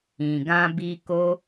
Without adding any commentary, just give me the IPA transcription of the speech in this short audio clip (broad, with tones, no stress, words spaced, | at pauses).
ĩ˨ɡã˧ bi˧ ko˦